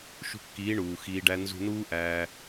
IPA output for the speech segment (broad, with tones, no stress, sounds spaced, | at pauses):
ʃ ṳ˧ kː iː˨˦ ɳ uː˨ x iː˧ ɖ æ˦ n z ṳ˧ n uː˦ ʔ æː˧